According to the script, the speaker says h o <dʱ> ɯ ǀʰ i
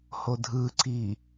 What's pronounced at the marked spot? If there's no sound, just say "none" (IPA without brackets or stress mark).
dʱ